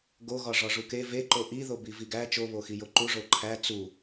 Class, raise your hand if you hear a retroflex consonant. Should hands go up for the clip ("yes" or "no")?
yes